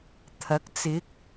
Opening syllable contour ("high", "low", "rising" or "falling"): rising